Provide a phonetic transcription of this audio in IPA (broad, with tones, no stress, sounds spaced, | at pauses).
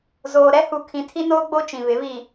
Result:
z oː˨ ɾ ɛ˦ h u˨ kʰ ĩ˨ tʰ i˦ n oː˦ ɡ͡b o˦ t͡ʃ ĩ˨ β ɪ˨˦ β i˨